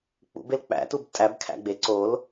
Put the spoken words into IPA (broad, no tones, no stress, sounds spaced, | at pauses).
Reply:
k͡p ṵ b e l k͡p æ̰ t u b tʼ æ b kʰ æ̰ ɡ͡b e ǀ o l